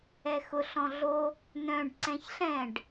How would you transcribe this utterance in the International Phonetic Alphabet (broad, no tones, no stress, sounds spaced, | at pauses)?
ɛ x ʊ ɬ ɔ̃ ɮ o | n œ̃ ɖ ǀ ɛ̃ ç ɬ ɛ̃ ɖ